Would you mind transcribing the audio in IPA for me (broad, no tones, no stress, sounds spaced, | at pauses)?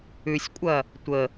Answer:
ʉ sʲ kʷʼ ɐ | tʷ ə